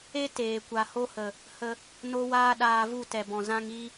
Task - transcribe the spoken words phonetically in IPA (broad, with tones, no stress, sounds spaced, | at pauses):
e˦ t eː˨ kʷ a˧ h o˦ h ə˨ | h ə˦ | n o˦ w aː˦ ɗ aː˧ v u˦˨ t ɛ˨ b ɔ̃˨ z ã˦ ŋ i˦